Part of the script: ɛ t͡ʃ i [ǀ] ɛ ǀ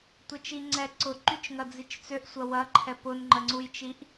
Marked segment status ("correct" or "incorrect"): incorrect